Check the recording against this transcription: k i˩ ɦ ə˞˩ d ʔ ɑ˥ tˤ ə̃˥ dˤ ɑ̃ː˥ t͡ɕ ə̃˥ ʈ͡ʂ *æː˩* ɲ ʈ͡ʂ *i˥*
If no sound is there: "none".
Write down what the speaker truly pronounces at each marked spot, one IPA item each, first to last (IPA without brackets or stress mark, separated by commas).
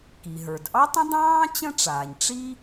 aː˩, i˥